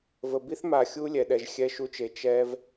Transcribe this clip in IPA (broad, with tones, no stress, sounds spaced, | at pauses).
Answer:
v ə˨ b i˦ θ m a˨ xʲ u˦ lʲ ɛ˨ ɗ ɛ˨ ʒ xʲ ɛ˧ ʃ u˧ t͡ʃ e˨ t͡ʃ ɛ˦ v